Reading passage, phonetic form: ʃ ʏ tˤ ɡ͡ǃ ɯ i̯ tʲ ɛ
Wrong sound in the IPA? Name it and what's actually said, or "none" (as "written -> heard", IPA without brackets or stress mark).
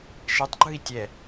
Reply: ʏ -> ɛ